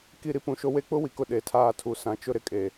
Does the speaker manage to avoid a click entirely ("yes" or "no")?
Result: yes